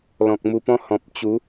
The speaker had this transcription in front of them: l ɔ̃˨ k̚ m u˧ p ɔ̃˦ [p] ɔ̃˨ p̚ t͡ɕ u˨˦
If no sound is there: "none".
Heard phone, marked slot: h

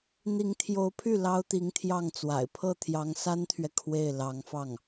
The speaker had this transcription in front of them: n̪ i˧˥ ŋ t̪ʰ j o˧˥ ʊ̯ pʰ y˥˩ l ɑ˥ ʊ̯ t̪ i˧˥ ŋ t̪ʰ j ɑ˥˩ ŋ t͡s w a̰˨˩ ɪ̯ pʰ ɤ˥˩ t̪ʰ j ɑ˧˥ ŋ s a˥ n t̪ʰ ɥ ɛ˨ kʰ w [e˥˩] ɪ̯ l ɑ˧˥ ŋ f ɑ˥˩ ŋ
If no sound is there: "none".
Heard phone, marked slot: e˥˩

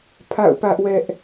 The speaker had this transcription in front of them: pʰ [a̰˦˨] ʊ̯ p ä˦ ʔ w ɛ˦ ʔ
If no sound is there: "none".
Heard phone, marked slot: a̰˦˨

